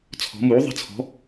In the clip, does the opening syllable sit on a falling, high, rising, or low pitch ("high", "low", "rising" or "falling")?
rising